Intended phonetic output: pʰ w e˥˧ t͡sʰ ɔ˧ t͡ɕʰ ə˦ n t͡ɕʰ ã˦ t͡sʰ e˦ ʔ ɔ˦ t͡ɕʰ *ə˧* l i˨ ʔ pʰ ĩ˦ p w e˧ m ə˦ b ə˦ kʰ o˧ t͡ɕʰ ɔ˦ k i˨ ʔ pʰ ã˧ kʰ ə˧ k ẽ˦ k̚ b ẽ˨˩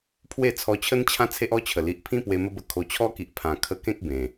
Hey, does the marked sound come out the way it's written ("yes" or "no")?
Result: no